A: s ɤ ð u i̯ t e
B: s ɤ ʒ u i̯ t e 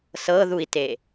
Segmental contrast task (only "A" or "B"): A